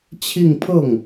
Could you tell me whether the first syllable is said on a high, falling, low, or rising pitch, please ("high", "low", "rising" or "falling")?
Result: falling